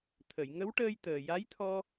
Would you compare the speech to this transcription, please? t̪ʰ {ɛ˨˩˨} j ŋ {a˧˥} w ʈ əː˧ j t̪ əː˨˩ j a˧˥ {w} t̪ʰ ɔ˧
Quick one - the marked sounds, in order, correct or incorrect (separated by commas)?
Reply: incorrect, incorrect, incorrect